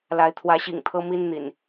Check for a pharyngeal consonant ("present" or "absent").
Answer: absent